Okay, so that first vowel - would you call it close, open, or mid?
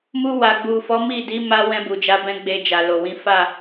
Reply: close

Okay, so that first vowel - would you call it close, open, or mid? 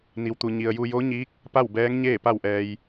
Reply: close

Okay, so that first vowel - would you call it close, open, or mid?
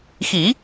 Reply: close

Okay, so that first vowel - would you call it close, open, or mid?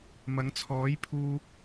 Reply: open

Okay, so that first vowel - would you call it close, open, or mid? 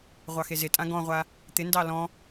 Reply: open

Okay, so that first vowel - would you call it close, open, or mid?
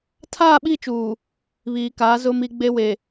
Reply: open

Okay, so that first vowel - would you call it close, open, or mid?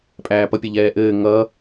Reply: open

